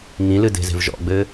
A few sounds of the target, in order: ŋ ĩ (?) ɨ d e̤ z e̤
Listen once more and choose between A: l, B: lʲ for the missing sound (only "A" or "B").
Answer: A